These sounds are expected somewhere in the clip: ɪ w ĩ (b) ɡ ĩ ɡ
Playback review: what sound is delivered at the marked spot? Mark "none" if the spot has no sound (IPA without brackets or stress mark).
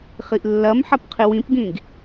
p